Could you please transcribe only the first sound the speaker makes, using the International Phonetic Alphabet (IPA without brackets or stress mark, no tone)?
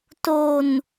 t